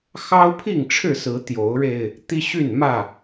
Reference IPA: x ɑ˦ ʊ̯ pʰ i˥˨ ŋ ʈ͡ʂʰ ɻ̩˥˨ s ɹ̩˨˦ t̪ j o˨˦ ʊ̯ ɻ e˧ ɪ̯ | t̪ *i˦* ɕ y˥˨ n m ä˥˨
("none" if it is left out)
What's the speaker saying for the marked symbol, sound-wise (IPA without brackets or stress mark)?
i˦